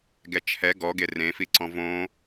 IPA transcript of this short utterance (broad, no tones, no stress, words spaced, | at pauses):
ɡɛt͡ʃʰɛ ɡɔɡe rẽfi ǀɔ̃võ